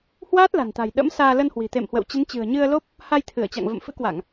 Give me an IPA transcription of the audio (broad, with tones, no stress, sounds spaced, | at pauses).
h w aː˦˥ t̚ l a̤˨˩ n t̪ a̤˨˩ j ɗ ə̰˧˥ m s aː˧ l ə˧ n h w i̤˨˩ t̪ ḛ˧˨ m h w ə̰˧˨ w t͡ɕ ə˨˦ n t͡ɕ ɨ̤˨˩ ə̯ ɲ ɨ˧ ə̯ l o˦˥ p̚ | h a˧ j t̪ʰ ɨ˧˩ ə̯ t͡ɕ a̰˧˨ ŋ v ə̰˧˨ m f ɨ̰˧˥ k w a˧˩˨ ŋ